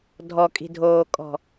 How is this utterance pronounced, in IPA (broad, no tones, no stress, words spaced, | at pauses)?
dʱɔkʼi̤dʱoːkʼɔ̤